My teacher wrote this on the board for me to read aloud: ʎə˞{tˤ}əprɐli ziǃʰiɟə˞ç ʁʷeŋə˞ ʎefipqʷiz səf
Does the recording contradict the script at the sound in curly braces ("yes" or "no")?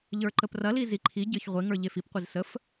yes